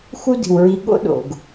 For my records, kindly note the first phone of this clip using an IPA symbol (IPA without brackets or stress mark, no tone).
x